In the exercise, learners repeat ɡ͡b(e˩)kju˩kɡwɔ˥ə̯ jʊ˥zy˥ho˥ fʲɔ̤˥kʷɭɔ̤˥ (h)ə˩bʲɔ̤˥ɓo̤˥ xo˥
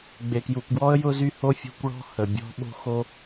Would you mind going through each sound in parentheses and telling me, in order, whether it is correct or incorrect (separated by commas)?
correct, correct